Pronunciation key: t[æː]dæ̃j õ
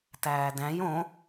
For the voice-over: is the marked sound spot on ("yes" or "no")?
yes